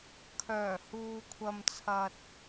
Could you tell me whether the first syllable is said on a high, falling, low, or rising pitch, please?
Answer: low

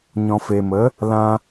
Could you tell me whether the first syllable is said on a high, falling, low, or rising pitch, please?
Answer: low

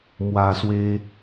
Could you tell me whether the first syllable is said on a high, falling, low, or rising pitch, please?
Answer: low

